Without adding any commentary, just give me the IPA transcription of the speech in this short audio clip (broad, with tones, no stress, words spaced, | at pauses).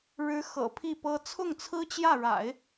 ɻɻ̩˧˥ xɤ̰˨˩pʰi˥˩pɤ˥ t͡sʰʊ˥˩ŋt͡sʰɹ̩˥t͡ɕjä˥˩ɻa̰˨˩˦ɪ̯